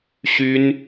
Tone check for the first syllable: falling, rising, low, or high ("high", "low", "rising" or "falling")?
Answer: high